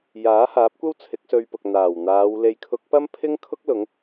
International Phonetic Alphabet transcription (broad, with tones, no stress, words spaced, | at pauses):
jaː˨˥haː˨˥p̚kʷɐ˥w t͡sʰɪ˨˥k̚sɵ˧ɥpʊ˨k̚ n̪aː˨˩wn̪aː˨˧w le˨jkʰʊ˨˥k̚pɐ˥mpʰɪ˥ŋ kʰʊ˥k̚lʊ˨˧ŋ